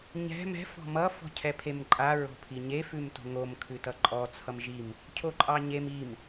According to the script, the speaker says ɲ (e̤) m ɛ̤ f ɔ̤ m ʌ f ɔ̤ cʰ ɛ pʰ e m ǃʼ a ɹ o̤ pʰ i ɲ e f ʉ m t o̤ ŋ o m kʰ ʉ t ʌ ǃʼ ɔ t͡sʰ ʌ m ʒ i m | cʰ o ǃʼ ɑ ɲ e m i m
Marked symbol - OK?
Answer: no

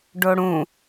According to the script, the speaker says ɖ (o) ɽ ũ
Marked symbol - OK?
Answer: yes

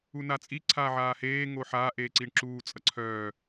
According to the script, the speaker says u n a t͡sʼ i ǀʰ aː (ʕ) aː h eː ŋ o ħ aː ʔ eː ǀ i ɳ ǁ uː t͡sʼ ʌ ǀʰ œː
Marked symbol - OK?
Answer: yes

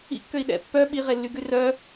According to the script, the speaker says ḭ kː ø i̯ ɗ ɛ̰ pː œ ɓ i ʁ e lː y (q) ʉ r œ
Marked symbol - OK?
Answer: no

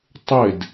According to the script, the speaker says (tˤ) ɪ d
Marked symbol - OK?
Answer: yes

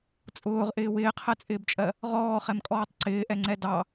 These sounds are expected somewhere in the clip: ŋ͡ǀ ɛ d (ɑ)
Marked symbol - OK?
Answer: yes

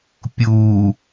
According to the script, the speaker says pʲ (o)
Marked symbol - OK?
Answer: no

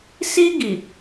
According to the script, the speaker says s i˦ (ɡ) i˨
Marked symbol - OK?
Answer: yes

